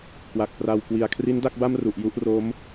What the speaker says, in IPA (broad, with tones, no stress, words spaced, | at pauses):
kwa˨˩k̚pra˧wkwi˨˩a̯ kʰri˦˥nda˥˩k̚ba˥˩mru˨˩ʔ ju˥˩ʔro˦˥m